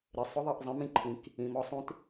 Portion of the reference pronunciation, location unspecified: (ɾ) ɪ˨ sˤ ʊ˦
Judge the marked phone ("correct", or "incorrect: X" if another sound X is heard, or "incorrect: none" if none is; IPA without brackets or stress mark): correct